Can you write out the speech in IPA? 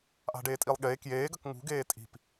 ʔ a̤ ɖ eː tʼ i lˠ ɠ eː k j eː ɡ ɐ k ŋ ṳ ɡ eː tʼ i̤ p

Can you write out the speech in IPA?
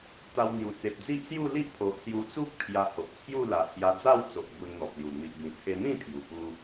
t̪ a˧ w n̪ j u˨˩ t͡s e˨ p̚ d͡z i˦ ʔ s j u˥˧ l i˦ ʔ pʰ o˨ ʔ s j u˧ t͡s u˦ k̚ pʰ j a˧ h o˨ ʔ t͡sʰ j u˥˧ l a˨˩ h j a˧ d͡z a˥˧ w t͡s o˨ ʔ b u˧ n n̪ ɔ˨ p̚ l j u˨˩ n̪ i˨ ʔ b ĩ˨˩ t͡sʰ e˧ n̪ ĩ˥˧ pʰ j u˨˩ p u˧

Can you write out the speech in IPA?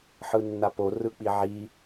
ħ ɯ nː a p o r ɯ k͡p i ʕ i

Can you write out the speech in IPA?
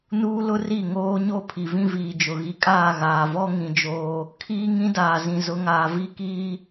n uː˦ l ʊ˦ r i˦˨ ŋ oː˦ ɲ o˦ pʰ i˨ v ĩ˦ v iː˨ d͡ʒ ʊ˨ ɣ i˨ kʼ aː˦˨ ɣ aː˨ v ɔ˦ ŋ ĩ˦ d͡ʒ oː˦ | kʰ iː˦ ŋ ĩ˦ d aː˨ z ĩ˨ z ʊ˨˦ ŋ aː˨ v i˦ k iː˦

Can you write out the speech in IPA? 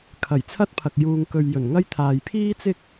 kʰ ɐ˨˩ j t͡sʰ ɐ˥ t̚ pʰ ɐ˨ k̚ j uː˧ ŋ k ɵ˧ ɥ j ɵ˨˩ n ŋ ɐ˥ j t̪ʰ aː˨ j pʰ iː˥ t͡s ɪ˥ k̚

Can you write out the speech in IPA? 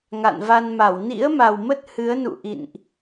ŋ a̰˧˨ n v a˧ n m a˧˩ w n ḭ˧˥ ə̯ m a˨˩ w m ə˦˥ t̚ h ɨ˨˦ ə̯ n ṵ˧˨ ʔ ḭ˧˨ n ʔ

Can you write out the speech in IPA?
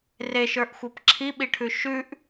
r e ʃ ə˞ ʔ xʷ ʌ p ǁʰ i ɓ i ʈʰ ʉ ʃ ʉ ʔ

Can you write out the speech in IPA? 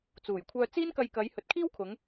t͡s uː˨˩ j kʷʰ œː˧ t͡s iː˥ n k ɐ˧ j k ɐ˨˧ j h ɵ˨˥ t̚ kʰ iː˥ w kʰ ʊ˨˧ ŋ

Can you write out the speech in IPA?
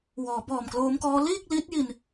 w ɔː˩˦ b ɔː˨˩ m k l oː˦˥ m k ɔː˦˥ l iː˥˩ k̚ l i˦˥ t̚ j i˧ n

